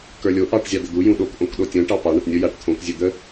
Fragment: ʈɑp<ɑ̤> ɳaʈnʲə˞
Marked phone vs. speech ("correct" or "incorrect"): incorrect